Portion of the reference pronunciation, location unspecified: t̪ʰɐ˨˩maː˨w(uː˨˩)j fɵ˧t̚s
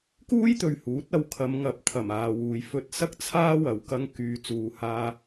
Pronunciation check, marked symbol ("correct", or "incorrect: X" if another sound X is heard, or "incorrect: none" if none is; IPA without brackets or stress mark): incorrect: uː˨